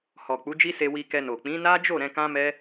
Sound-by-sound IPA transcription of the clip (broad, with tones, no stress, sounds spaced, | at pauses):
h ɔ˨ k͡p u˨˦ d͡ʒ i˦ s e˧ w i˧ k ɛ˧ n o˨ k͡p ĩ˨˦ n a˦ d͡ʒ o˦˨ ɾ ɛ̃˧ k ã˦ m ɛ˦